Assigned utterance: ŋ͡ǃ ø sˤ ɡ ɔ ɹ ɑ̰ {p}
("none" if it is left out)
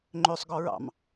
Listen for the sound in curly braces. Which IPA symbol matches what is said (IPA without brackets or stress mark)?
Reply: m